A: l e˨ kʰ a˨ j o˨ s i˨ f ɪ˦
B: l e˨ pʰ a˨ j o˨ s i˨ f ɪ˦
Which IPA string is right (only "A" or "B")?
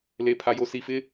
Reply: B